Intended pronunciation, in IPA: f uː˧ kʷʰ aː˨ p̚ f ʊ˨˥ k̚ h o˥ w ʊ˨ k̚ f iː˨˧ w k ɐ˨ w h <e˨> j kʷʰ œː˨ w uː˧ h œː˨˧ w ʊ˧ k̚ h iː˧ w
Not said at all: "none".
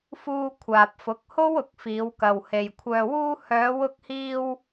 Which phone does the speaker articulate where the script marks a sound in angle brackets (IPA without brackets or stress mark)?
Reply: e˨